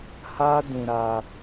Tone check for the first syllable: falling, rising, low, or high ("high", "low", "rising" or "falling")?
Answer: high